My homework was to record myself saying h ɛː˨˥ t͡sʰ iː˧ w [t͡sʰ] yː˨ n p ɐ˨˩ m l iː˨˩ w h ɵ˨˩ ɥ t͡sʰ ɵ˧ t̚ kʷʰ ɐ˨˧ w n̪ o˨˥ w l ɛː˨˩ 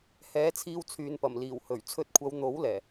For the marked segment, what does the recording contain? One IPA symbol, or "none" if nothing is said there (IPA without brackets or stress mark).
t͡sʰ